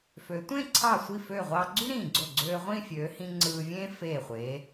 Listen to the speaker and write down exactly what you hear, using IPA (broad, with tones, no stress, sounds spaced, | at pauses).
f ø˩˧ tʷ ẽ˥˧ ǀʰ ɑ˧˩ sʷ i˧˩ f ø˧˩ ʁʷ ɑ˧ ɡ͡ǀ y˥ ɾ ĩː˧˩ ɡ͡ǀ o˧˩ ɡ͡ǀ øː˧ ʁʷ ĩ˥˧ fʲ øː˩˧ h ĩ˧ ŋ͡ǀ ɯː˧ vʲ ẽ˥ f eː˧˩ χʷ eː˩˧